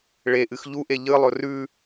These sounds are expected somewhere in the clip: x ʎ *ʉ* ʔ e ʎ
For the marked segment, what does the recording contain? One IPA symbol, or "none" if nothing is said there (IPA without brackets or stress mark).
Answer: u